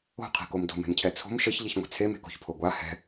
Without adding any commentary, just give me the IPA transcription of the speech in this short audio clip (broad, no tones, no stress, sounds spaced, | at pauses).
o̤ qʰ e̤ k o m d o̤ m e̤ m cʰ ɛ t͡sʰ o̤ m ʃ ɘ ç ʎ i ç ŋʷ e̤ t͡sʰ e m e̤ k o̤ ç pʰ o ɡʷ a h ɛ̤